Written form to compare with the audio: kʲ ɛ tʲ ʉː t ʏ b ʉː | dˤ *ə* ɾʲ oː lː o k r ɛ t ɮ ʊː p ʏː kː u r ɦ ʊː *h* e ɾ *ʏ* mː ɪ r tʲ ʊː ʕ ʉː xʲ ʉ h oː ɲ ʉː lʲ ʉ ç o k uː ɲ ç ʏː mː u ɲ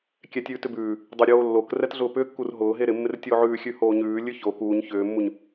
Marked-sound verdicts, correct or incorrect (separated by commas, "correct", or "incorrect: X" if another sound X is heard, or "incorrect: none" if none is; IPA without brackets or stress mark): incorrect: ʏ, incorrect: ɦ, incorrect: ɪ